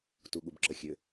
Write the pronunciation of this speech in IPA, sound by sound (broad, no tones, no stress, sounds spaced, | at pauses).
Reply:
t u ɠ u b ǁ ə xʲ ø